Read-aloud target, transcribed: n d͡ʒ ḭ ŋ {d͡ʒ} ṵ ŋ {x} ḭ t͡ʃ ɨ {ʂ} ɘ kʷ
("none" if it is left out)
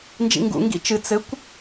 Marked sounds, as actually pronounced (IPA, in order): ɡ, ɡ, t͡s

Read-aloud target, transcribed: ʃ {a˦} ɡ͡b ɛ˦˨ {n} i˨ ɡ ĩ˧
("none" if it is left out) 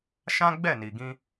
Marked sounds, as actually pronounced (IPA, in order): ã˦, n

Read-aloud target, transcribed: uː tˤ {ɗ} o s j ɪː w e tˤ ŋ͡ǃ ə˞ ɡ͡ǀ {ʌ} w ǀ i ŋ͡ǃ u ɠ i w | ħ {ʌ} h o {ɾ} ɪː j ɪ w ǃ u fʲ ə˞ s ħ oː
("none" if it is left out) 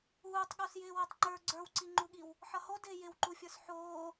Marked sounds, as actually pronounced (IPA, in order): ɠ, ə˞, ʌ, d

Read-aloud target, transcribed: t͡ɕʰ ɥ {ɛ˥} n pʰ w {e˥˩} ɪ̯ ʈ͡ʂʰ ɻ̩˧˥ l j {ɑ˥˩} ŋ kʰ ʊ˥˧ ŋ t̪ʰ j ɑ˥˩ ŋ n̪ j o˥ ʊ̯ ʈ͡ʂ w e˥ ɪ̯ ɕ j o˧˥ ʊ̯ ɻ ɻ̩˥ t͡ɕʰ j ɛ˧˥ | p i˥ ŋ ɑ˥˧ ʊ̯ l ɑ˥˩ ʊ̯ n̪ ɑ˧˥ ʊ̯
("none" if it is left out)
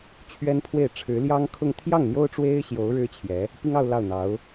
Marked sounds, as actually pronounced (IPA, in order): ɛ˥, e˥˩, ɑ˥

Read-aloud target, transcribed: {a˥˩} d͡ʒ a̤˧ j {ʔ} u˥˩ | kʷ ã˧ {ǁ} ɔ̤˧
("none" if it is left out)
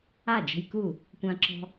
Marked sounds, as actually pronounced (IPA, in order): a˥˩, k, ǁ

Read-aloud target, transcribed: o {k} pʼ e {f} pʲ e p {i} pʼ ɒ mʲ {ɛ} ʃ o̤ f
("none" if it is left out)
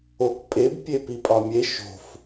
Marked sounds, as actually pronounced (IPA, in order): k, b, i, e

